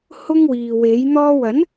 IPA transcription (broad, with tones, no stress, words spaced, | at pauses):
hʊ˥ŋwiː˨we˨˥j n̪ɔː˧wɐ˨˥n